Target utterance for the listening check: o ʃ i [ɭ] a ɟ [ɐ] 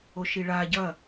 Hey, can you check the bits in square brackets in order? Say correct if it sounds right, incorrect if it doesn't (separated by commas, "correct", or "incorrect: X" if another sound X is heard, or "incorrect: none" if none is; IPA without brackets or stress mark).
correct, correct